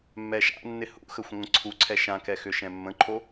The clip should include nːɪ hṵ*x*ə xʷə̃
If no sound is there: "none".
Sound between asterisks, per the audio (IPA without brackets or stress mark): x